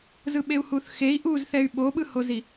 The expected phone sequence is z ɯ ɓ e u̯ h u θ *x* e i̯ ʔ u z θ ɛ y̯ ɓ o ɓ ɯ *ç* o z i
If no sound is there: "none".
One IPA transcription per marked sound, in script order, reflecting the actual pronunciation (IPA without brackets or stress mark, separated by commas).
x, h